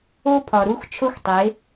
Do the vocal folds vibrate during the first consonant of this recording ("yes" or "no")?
no